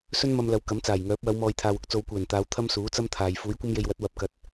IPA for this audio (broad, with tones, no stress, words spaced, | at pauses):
sɵ˥nmɐ˧m lɐ˨˧wkɐ˨˥mt͡saː˨˩jŋœː˨˥p̚ wɐ˨˧wmɔː˨jt̪ʰaː˨wʊ˥k̚ t͡so˨˧wkʷɛː˨˩nt̪aː˨˧w t̪ʰɐ˥msuː˨˥t͡sɐ˥mt̪ʰaː˨j fuː˨˥jkʷɐ˥mje˧jwɐ˨˥t̚ wɐ˨˥p̚kɐ˨t̚